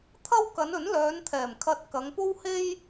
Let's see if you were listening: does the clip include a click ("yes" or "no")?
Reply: no